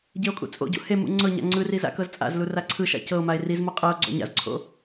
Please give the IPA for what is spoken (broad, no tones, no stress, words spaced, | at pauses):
ɟeo̯kʼṵt͡sʼo̰ɟṵ he mṵŋ͡ǀɤɲa̰ ŋ͡ǀɯri za̰kɤzt͡sʼa̰zlu raǀʰɯʃa̰ cɤo̯mae̯ rizmo qʼɤo̯ɡ͡ǀɔ̰ ɲa̰zǀʰo̰